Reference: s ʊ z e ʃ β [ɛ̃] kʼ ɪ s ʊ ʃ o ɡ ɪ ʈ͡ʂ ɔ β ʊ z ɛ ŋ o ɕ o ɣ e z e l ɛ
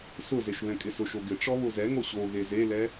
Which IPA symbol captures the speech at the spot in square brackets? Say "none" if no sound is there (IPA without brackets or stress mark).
ɛ̃